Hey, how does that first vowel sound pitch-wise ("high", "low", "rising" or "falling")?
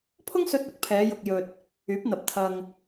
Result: high